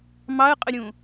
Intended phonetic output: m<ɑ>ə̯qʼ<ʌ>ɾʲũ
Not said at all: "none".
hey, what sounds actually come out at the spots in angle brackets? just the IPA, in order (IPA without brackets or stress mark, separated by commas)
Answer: ɑ, ə